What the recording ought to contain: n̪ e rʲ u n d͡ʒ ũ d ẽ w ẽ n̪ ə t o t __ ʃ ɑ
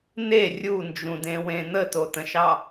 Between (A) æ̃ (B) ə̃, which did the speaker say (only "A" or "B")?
B